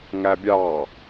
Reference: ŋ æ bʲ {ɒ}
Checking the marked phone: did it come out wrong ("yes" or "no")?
yes